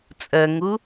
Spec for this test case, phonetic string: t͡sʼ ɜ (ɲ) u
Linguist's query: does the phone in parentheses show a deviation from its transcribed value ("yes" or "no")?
yes